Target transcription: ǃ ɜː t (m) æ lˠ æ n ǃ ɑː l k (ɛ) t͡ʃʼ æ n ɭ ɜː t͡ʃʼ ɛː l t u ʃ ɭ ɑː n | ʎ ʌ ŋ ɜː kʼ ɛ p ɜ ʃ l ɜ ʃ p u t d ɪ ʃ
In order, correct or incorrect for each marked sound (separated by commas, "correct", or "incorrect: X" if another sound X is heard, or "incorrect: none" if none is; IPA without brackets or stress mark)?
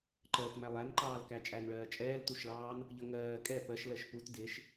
correct, incorrect: æ